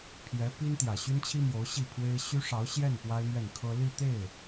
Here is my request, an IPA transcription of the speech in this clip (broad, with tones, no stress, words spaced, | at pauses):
pʰjɛ˧˥ pi˥n t̪jä˨˩ɕy˥nt͡ɕʰi˥mjo˧˥ʊ̯ ɕi˥˩ pʰwe˥ɪ̯ ɕy˥ʂɑ˧˥ʊ̯ɕjɛ˥˩n pwa˥ɪ̯n̪ɥɛ˥˩nkʰɤ˥ li˥˧t̪e˥˩ɪ̯